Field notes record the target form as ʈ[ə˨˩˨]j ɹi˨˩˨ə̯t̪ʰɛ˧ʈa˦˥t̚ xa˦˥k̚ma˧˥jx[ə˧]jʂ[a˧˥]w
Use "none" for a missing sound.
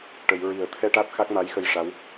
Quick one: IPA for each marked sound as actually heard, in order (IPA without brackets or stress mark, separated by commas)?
ə˨˩˨, ə˧, a˧˥